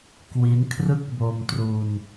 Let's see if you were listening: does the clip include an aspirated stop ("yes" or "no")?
yes